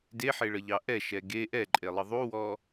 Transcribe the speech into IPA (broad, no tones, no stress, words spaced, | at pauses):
deħeɭəʎɑ ʔɛʃɛ ɡe ʔɛǃʼelˠə ðˤuwɔ